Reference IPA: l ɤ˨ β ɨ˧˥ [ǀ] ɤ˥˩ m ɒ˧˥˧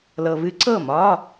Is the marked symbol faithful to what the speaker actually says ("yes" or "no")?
yes